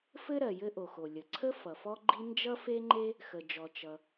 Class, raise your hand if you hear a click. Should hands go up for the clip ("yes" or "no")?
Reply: yes